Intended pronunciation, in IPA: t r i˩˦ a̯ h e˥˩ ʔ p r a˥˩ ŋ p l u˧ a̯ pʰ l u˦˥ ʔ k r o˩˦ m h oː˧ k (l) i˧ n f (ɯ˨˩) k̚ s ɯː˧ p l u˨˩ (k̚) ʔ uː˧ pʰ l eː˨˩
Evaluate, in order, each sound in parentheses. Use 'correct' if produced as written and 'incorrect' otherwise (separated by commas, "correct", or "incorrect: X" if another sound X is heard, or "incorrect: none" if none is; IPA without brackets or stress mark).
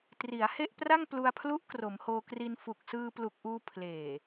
incorrect: r, incorrect: u˨˩, correct